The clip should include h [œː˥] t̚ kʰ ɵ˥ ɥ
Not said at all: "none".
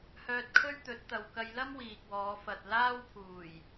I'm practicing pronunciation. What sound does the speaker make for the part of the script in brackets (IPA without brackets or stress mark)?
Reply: œː˧